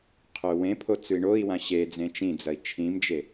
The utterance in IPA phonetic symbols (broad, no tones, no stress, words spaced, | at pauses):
qʰɵwẽpʰo t͡sʉi̯ɳoi̯wã ɕed͡zẽ t͡ʃĩd͡zɐi̯ t͡ʃʰĩmd͡ʒe